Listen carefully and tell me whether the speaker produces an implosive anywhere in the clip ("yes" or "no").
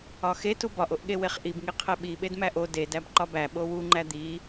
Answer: yes